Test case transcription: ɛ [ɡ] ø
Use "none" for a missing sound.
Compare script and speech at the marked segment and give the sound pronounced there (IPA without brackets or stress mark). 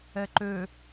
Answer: ǃ